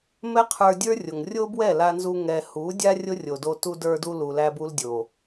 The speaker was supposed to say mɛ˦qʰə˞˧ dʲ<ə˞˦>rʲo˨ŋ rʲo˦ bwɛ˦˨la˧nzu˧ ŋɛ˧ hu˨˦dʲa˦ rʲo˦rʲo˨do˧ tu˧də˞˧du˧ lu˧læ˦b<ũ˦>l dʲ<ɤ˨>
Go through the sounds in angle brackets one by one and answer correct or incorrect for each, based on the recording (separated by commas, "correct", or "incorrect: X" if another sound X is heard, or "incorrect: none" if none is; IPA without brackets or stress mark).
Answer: correct, incorrect: u˦, incorrect: o˨